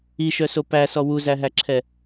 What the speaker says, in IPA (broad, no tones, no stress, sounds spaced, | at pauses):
i ʃ œ s o p æ s ɔ w u z æ ɦ æ ǁʰ ɛ